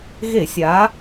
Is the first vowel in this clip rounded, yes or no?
no